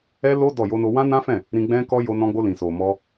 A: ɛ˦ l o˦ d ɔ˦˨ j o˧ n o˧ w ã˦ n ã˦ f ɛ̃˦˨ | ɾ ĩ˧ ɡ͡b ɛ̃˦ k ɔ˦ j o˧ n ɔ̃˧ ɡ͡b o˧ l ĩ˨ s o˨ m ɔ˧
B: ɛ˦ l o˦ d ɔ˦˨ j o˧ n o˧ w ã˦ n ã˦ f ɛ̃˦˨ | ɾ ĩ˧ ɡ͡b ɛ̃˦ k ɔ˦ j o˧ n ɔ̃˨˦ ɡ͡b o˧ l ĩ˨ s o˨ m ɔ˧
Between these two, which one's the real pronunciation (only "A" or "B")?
A